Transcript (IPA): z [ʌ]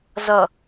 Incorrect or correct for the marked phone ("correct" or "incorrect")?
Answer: correct